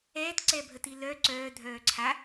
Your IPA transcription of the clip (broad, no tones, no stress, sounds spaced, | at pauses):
ɛː t ǀ ɛ bʱ ə t i l œ ǀ œː dʱ œː ǀʰ a